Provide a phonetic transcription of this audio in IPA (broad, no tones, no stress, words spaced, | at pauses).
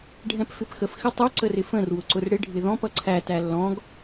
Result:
ɖʱɛ̃pfɪpxəf xɪtˤʊ ǀərɪfə̃r wʊǀʊrɽɪ ɖʱɪðɔ̃p ʌǀʰæ tælːɔ̃ɡ